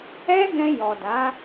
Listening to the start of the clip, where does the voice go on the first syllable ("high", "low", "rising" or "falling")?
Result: high